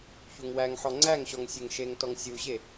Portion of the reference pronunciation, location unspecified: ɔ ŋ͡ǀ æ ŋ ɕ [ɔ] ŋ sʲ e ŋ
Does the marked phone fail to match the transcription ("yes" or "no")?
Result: no